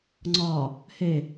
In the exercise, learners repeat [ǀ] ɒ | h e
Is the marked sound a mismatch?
yes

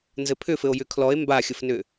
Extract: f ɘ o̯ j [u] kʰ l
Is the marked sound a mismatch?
yes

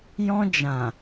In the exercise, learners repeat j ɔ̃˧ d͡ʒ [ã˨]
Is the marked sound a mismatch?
no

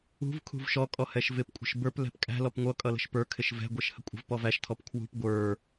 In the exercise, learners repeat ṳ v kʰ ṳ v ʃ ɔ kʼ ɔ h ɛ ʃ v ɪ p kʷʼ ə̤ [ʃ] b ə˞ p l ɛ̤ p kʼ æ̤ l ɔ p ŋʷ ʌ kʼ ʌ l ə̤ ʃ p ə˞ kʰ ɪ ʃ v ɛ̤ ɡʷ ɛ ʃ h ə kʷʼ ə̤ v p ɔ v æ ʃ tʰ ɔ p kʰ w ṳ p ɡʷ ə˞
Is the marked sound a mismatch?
no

